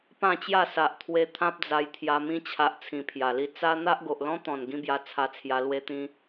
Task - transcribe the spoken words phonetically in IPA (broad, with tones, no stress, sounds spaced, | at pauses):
p ã˥˧ t͡ɕ j a˥˧ s a˨ ʔ t̪ʰ w e˧ t̪ʰ ã˦ p̚ d͡z a˧ j t̪ʰ j a˧ m ĩ˧ t͡ɕʰ a˨ ʔ t͡sʰ ĩ˨˩ pʰ j a˨˩ l i˥˧ t͡s a˦ n̪ a˦ ʔ ɡ o˨ ʔ l ɔ̃˦ t̪ ɔ̃˨˩ n ɡ ĩ˦ b j a˧ t͡sʰ a˧ t͡sʰ j a˧ l w e˦ t̪ ĩ˦